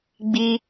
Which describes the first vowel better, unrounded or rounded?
unrounded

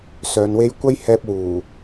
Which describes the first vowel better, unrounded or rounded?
rounded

